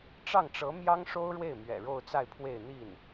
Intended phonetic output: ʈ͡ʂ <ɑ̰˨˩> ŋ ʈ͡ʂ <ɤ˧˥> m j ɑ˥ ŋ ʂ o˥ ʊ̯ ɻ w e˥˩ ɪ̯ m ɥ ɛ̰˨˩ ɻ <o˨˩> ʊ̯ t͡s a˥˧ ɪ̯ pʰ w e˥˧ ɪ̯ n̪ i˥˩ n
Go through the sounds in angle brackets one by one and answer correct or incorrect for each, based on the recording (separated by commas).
incorrect, correct, incorrect